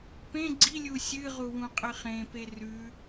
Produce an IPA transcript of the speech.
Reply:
p ẽ ɡ͡ǀ i lʲ u sʲ ɨ ʁ u w ũ qʼ ɨ χ ẽ p e r ʉ

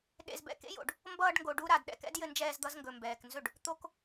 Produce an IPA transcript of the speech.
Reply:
ɗ ḛ˧ z b ɛ̰˧ k ḛ˦ j o̰˨ ɖ | m b ʌː˧ ɖ ŋ ɡ o˨ ɖ u˧ ɾ a˨ d ɗ ɛ̰˨ k ɛ̰˦ d j ɘ˧ n d͡ʒ ɛː˧ z d̪ ʌ˧ z ŋ ɡ ɵ˨ m b ɛː˨ k n z ɵ˦˨ ɖ | t̪ o˦ k

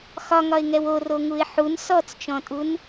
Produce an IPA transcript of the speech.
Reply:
x ɒ ŋ ɒ ɪ̯ ŋ ɛ w o r o ŋ u ɪ̯ ħ u n s ɔ t͡s t͡ʃ ɔ̃ tʼ u n

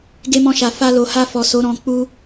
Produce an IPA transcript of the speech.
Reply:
ɡ e˧ m ɔ̃˧ ʃ a˨ f a˧ l o˨ h a˧ f ɔ˨ s o˨˦ ɾ ɔ̃˧ k͡p u˦

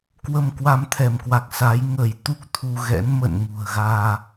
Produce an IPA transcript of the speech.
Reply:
k w ə˧ m k w a˧ m t̪ʰ ɛ˧˩ m k w a˨˩ k̚ s a˨˦ j ŋ ə˧˩ j t̪ u˦˥ k̚ t̪ʰ u˧ ɣ ɛ̰˧˥ n m ə̰˧˨ n ŋ ṳ˨˩ ə̯ ɣ aː˧

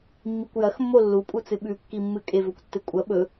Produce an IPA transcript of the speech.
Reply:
mː i kʷ j ɐ x mː o lː u pʼ u t͡s ɨ ɓ ʉ kː i mː ɨ kʼ e v ɵ kʷ tː ɨ kʷʼ ɐ ɓ ɵ

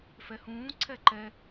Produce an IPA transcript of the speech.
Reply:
f ɛ h ũː ǀʰ ɛ ǃ ɛ

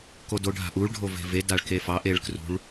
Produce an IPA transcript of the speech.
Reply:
k o d o ɖʱ a̤ ʔ u ɭ ɖʱ o v e̤ v e d a ɭ k e f ɑ ʔ e ɭ k r ṳ ɭ

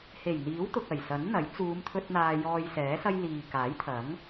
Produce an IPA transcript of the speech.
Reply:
h e˨˩ j n̪ iː˨˥ w t̪ ʊ˨ k̚ ɐ˨˩ j s ɐ˨˥ n n̪ ɐ˨˥ j t͡s uː˨˧ m t̪ʰ ɵ˧ t̚ n̪ aː˧ j ɔː˧ j s ɛː˨˥ s ɐ˥ j l iː˨ k aː˨˥ j t̪ʰ ɐ˨˥ ŋ

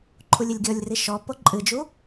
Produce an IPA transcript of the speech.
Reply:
ǃʰ u lʲ ɘ lʲ ɡʲ ɔ lʲ r i ʃ ɔ p o ǃʼ ɨ d͡ʒ u

